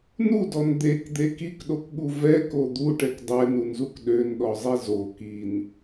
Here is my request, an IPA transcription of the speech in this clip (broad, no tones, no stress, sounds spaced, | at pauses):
n u d ɔ n d̪ e k d̪ e k i k ɗ o k ɠ u v ɛ k o d̪ u ʈ ɛ k dˤ ɛ n u n z u k ɗ ø n ɗ ɔ zˤ e z o k i n